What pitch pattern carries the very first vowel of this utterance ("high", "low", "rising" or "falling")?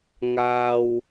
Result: high